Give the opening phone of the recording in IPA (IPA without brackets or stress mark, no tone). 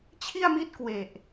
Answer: t͡ɕʰ